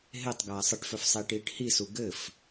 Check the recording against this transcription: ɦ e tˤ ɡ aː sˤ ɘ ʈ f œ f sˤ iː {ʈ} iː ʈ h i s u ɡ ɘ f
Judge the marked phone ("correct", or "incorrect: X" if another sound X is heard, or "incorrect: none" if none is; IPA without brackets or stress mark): correct